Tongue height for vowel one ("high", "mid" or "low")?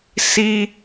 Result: high